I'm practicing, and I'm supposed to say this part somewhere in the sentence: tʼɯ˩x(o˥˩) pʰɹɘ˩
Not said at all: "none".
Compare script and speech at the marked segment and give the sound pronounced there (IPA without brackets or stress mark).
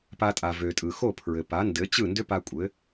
o˥˩